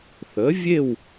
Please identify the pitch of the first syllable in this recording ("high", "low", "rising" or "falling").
rising